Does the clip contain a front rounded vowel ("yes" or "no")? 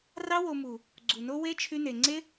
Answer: yes